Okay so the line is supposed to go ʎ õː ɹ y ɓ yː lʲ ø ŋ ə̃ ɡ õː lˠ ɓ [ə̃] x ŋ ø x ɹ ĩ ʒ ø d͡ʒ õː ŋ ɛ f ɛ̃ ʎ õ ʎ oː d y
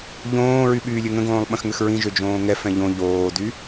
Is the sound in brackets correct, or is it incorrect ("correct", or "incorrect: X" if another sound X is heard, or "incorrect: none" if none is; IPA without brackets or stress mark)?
correct